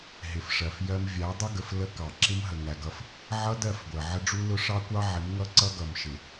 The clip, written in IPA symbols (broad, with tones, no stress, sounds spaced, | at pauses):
ɦ ɪ˨ f ʂ ɜ˨ f j ɜ˦ m vʲ æ˨˦ dˤ ɪ˦ ɡ ə˨ f l ə˦ k ɑ˨ ǁ ɪ˦ m ɦ ə˨ ŋ æ˨ ɡ ʌ˦ f | ʕ ʌ˦ d ɜ˦˨ f ɡʷ ɜ˨ ʕ ə˦ ɖ͡ʐ u˦ l ʊ˦ ʂ ɑ˦ kʷ ɑ˦ ʕ ɪ˨˦ m ŋ ʌ˦ ǀ ʌ˦ ɡ ʌ˨ m ʃ ɪ˨